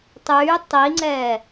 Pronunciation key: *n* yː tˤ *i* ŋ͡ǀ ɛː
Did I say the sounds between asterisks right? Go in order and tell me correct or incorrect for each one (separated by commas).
incorrect, correct